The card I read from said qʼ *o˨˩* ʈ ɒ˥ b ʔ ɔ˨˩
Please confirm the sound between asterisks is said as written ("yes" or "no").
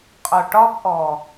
yes